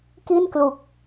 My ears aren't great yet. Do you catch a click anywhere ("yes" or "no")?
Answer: no